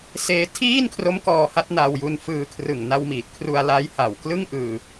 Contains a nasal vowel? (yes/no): no